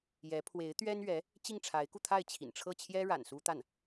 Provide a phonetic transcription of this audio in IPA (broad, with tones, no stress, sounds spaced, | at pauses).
j ɛ˧˥ pʰ w e˧˥ ɪ̯ t̪ ɥ ɛ˥ n ɥ ɛ˧˥ | t͡ɕ i˥˩ ŋ ʈ͡ʂʰ a˧˥ ɪ̯ k u˧ t̪ʰ a˥˩ ɪ̯ t͡ɕʰ ḭ˨˩ n ʈ͡ʂʰ ɤ˥˩ t͡ɕʰ j ɛ˥ ɻ a̰˨˩ n s u˥ t̪ a˥˩ n